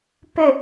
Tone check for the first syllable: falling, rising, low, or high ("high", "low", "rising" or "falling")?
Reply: falling